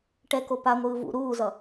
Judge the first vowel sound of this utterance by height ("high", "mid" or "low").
mid